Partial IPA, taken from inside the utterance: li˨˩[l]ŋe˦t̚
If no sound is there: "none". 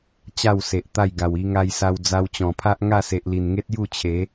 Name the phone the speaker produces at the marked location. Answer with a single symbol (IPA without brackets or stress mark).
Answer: n